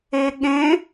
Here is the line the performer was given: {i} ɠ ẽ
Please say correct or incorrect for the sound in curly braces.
incorrect